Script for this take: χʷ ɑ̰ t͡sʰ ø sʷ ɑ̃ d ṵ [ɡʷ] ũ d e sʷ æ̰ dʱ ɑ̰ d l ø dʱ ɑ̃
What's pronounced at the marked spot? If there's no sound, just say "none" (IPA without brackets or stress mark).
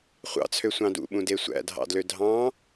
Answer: ɓ